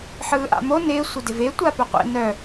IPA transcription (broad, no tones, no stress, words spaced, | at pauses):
ħɯːʔa̰mo nɪː sʷɪdɪve tʷapœqʷḛ nœ